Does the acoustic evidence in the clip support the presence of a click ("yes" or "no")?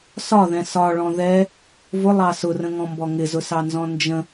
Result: no